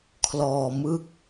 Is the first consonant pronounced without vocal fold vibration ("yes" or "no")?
yes